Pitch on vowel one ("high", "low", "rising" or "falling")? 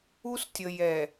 high